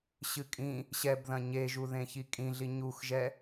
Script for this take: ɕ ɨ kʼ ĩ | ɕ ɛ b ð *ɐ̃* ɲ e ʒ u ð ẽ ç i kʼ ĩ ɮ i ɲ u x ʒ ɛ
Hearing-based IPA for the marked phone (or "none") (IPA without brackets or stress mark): ɐ̃